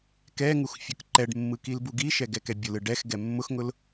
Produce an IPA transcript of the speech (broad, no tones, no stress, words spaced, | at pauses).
kɛŋux fʲʊkǃɛɖmːɯ kilbuɡiʃɛ ɡɛkɛbʲʊlɯ ɖɛx ɡɛmːʊxŋʊl